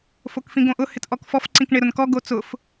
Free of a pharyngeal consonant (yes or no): yes